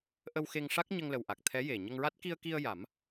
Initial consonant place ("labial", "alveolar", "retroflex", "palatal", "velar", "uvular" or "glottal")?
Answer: glottal